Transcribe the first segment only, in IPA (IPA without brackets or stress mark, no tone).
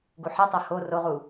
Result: ɡ